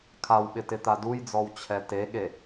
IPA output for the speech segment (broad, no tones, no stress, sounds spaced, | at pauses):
kʰ a w ɓ ɪ t ɪ t̪ a d u j d͡z ɔ w t͡ɕʰ ɛ t e ɠ e